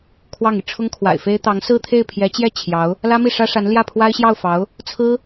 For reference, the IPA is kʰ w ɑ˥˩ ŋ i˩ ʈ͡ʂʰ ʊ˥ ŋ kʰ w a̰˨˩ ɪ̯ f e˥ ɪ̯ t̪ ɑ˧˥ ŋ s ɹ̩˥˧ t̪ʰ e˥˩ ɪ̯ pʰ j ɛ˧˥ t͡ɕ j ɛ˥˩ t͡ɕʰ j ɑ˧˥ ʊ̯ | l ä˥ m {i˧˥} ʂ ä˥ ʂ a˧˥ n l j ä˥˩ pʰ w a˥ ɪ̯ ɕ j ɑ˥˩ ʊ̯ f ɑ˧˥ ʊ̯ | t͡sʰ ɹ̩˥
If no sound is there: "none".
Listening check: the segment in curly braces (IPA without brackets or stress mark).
i˥˩